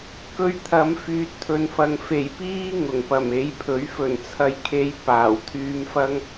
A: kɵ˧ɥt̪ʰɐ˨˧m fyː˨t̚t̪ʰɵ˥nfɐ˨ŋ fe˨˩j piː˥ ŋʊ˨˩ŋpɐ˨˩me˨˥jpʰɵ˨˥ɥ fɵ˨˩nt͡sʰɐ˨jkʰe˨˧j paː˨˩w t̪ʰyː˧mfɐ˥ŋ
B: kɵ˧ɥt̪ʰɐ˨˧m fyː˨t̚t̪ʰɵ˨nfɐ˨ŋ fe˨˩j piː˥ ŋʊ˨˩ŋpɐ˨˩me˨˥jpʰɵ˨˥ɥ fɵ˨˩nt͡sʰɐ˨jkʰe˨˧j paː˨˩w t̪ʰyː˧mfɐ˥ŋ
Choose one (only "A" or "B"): B